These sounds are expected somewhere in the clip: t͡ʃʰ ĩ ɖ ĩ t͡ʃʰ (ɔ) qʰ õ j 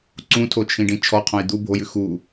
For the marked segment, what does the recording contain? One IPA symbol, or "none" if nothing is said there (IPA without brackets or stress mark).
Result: ɔ